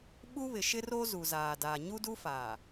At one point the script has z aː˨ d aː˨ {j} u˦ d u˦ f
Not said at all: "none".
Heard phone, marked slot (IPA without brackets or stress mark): ɲ